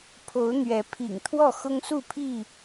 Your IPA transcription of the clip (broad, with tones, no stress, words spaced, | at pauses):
pʰo˨˦ʊ̯n̪ɥɛ˨˦ pʰḭ˨˩ŋt̪ʰwɔ˥˨ xʊ˦ŋsu˥˨pʰi˥˨